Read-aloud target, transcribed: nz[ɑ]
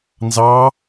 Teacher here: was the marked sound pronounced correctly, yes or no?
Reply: yes